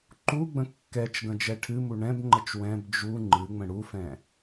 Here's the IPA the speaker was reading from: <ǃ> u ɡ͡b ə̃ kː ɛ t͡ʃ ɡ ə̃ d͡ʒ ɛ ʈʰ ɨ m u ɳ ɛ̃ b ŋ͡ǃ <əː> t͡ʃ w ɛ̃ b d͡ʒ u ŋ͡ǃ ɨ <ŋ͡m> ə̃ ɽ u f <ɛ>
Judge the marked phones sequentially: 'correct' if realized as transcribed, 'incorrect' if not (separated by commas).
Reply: correct, incorrect, correct, incorrect